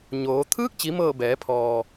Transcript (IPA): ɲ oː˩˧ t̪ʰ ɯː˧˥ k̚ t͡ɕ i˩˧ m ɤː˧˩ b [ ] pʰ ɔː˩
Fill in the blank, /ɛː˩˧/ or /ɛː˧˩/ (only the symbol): ɛː˩˧